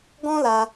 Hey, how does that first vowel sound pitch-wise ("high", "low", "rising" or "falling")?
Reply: high